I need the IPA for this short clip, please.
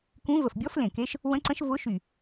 kũ˧˥ və˧˩fbʲɔ˧˥flẽ˧˩ke˧˥ʃ | wə̃˧˥ǀə̃˧˥ʃvʊ˧˥ ʃy˧˩

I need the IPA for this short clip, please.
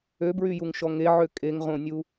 øbɹyjuŋʃɔ ŋeʕø kʼeŋʁõnʲu

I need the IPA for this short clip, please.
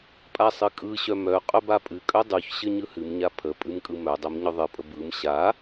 pʼasˤɨkʼɯɕœ mœ qʼœbapʼɨkʼœ dˤuçɕɘ ɲɯhɨmɲa pʰə pʼɨmkʼɯmœdˤœm ɲœðˤɨpʼə bɯm ɕa

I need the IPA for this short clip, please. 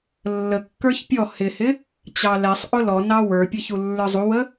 lːəkːə˞ç pʲɔ hɪhɪ | t͡ɕɑlɛsˤʔʊ lɔnɑ wə˞pʲʌ çulːə˞zˤuwə

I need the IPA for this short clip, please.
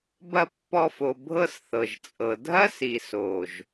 bɐ˦˨pːɔ˧fo˨ bʱɤ˦sθɤ˨ʒt͡sʼɤ˨ dʱɐ˦si˨so˨ʒ

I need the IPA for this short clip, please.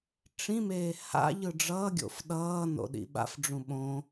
ʈ͡ʂĩmeː ha̰ʎɯ ɖ͡ʐʌːɡʲo̰f ɗʌː no̰ɗḭɓa̰fɖ͡ʐũ ɓõ

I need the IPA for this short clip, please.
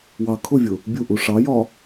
wɑ kʰʊvʲʊ | bʲuʔu ʂɑjɒ

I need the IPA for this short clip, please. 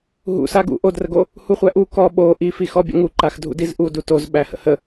ɦṵ saɡṵ ʔodrəɡo | huχʷæʔu kɔ ɓo ʔifixɔ bʲə̰ŋuǃax dʱṵdizʔu dutozɓæhə̰ hə

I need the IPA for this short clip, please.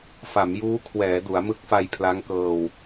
fa˩˦mjuː˦˥kʰwɛː˩˦ du˩˦a̯mɯ˦˥k̚fa˧j pʰla˦˥ŋkɤː˧w

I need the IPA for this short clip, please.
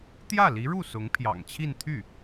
t̪jä˥˩li˧˥ɻu˥˩ sʊ˧˥ŋpʰjɑ̰˨˩ŋt͡ɕʰi˥˧nt̪ʰy˥˩

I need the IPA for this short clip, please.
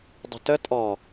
dˤə̤tə tʼɔ

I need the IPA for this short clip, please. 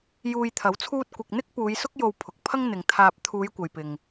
juː˧jt̪ʰɐ˨˥wt͡sʰuː˥t̚kʷɪ˧k̚ n̪ɪ˥k̚puː˨˧jsʊ˥k̚ jo˧wpʰʊ˨k̚pʰɐ˥ŋ n̪ɪ˨ŋt̪ʰaː˧p̚ t̪ʰuː˨˧jkʷɐ˨jpɪ˨ŋ

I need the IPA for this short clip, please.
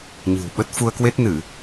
ɲɨ̤˨˩wɓə˦˥t̚ fu˧ə̯kwe˦˥t̚nɨ˧˩˨

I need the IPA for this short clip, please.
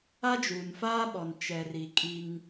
a˦d͡ʒuː˨nfaː˦ɓɔ˨n t͡ʃɛ˨ri˨kʼi˦ŋ

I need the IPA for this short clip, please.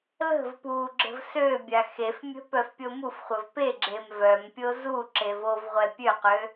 lə̤v puɡ͡ǁə̤v søbʲa xefmʲə̤ pœfpʲomufχʷəv peɡ͡ǁem vœmpʲo zu ǁevovʁʷɛ pʲøqø

